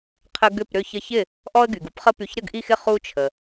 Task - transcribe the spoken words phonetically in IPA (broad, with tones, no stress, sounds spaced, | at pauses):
qʰ ə˦ ɡ ʏ˥˨ p ɾ ʏ˥˨ ç ə˥˨ ç ɪ˥˨ | ʔ ɔ˦ ə̯ ɡ y˩ ɡ u˦ p χ ə˦ p y˧˩ ç ɾ ə˥˨ ɡ ʔ i˥˨ x ɪ˥˨ χ u˦ t͡ʃʰ ə˩